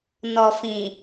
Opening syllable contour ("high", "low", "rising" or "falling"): low